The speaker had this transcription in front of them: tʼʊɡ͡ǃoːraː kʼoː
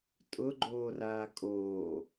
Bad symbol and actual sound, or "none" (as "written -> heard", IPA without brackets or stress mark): none